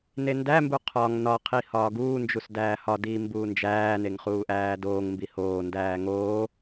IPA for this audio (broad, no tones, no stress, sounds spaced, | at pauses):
n e n d æ m b u qʰ ɒ ŋ n ɒ qʰ i h ɒː ɡ uː n d͡ʒ u s d æː h ɒ d iː m b uː n d͡ʒ æː n e ŋ χ uː ʔ æː d oː ŋ m b i h oː n d æː ŋ oː